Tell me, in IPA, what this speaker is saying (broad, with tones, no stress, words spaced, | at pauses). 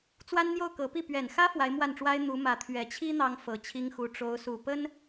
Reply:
t͡swa˥nn̪jo˥˩ʊ̯kɤ˧˥pi˥˩ pɥɛ˨˩nxä˥ fwa˧˥ɪ̯mwa˥˩nʈ͡ʂwa˥ɪ̯ n̪u˧˥mä˧˥ t̪ʰɥɛ˨˩t͡ɕʰi˥ n̪ɑ˥ŋfɤ˨˩t͡ɕʰi˥ŋxu˧˥ ʈ͡ʂo˧˥ʊ̯su˨˩pə˥n